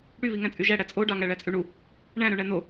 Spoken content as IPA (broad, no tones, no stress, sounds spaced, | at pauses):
ɽ y β i ŋ æ̃ t͡sʼ y ʒ æ ɽ æ t͡sʼ o ɖ ɑ ŋ æ ɭ æ t͡sʼ y ɳ u | ɳ æ̃ ɾ ø ɳ æ n o